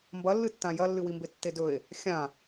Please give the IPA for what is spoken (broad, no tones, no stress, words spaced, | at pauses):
mbɐlːɨtːã jɐlːɨwimbe tːedɵe̯ | xʲã